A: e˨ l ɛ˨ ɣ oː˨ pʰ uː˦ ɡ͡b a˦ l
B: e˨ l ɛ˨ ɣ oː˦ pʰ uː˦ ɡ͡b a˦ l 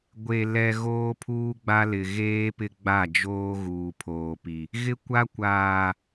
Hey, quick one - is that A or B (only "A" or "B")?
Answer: B